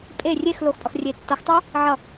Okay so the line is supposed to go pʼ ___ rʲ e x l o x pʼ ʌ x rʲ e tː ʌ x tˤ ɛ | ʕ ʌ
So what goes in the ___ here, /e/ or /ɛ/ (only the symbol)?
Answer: e